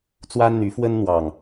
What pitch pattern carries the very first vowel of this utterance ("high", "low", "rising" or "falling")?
high